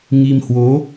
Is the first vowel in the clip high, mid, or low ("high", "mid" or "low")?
high